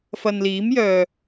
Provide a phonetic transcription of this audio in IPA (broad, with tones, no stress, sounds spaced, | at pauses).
f ɐ˨ n l iː˨˥ m j œː˨